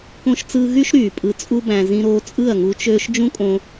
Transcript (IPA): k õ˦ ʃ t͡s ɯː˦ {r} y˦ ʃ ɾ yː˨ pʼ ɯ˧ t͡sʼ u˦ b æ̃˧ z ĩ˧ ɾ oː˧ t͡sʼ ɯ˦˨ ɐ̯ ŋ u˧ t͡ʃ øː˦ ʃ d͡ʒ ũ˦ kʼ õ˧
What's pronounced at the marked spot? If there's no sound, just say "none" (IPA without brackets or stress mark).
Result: ɣ